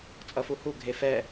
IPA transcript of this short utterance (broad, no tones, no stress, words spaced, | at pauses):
t͡sʼʌfuhu ɡʱefɛ